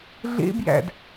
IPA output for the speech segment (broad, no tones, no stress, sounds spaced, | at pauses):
ɮ ḛ b j æ̰ d